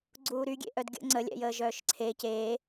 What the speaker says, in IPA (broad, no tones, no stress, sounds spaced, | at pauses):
ɡ͡ǀ uː ɾ y ɡʲ ḛ ʔ œ d ɡʲ ə̰ ŋ͡ǀ ə lʲ ɛ̰ j əː ʒ œː ʃ ǀʰ e c eː